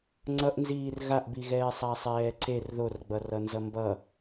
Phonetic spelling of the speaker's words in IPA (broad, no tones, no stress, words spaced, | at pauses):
ŋ͡ǀʌʔnziːr ɣaʔbiɣɛː sˤasˤɛːǀer ðorɡ͡bʌrʌnzʌ mbʌ